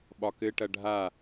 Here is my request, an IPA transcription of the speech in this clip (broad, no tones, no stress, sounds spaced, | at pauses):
ɓ ɒ k ɘ ʈ ɐ ɖʱ a